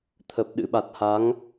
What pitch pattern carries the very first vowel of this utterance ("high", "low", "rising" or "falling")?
low